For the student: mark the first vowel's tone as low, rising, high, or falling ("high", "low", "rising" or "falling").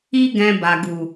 high